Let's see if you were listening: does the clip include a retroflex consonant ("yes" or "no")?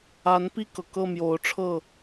yes